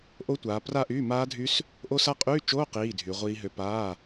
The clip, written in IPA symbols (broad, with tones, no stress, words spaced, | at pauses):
ʔo˦˥tʷaː˨˦ pra˥˨ʔyː˧˥˧maː˦˥dʱy˦˥s | ʔo˦˥sa˦˥ qʼyː˧˥˧t͡ʃoː˧˥˧ qiː˧˥˧ dʱy˨˦ ʁʷiː˦˥ɦø˦˥ paː˧˥˧